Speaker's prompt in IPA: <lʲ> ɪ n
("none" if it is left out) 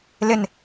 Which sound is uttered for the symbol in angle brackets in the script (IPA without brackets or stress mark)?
l